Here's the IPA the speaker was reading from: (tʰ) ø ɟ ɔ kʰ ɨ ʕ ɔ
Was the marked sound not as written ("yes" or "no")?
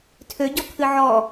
no